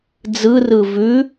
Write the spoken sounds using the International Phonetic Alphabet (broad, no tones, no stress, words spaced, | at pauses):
d͡zɯrɯ vʉ